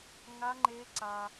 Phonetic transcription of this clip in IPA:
ŋ a˦˥ ŋ͡ǃ e˦˥ ǀ a˧

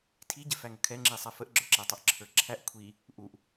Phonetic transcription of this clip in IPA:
tʰ i ɟ ɪ f æ ŋ ə kʰ ɛ ŋ͡ǁ i sˤ ɛ f ə ʔ ɡ͡ǁ ə˞ ǁ ɛ tˤ ɛ ʔ ǁʰ ə˞ ǁʰ æ ʔ kʷʰ i | ʔ u ʔ

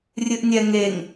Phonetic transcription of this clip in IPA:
rʲ ɨ ʔ nʲ ɛ ŋ e ŋ

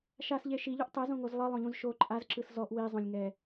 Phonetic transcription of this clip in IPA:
ʃ a s ʎ e ʃ i ʎ u ʔ tˤ ɛ z õ ŋ o z lˠ ɤ lˠ õ ʎ ũ z ʃ o ǃʼ a z ǁ ɯ s z ɔ ʔ w i zˤ õ lʲ ŋ ɛ

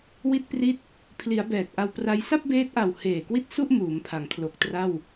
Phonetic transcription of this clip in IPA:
w i˥˩ t̚ p r i˥˩ t̚ | pʰ l i˩˦ a̯ b ɛː˨˩ t̚ ʔ a˧ w p r a˦˥ j s a˥˩ p̚ b eː˦˥ t̚ ʔ a˨˩ w h eː˨˩ k w i˥˩ t̚ s u˥˩ ʔ m uː˩˦ m pʰ a˩˦ ŋ kʰ l o˨˩ k̚ t r a˥˩ w

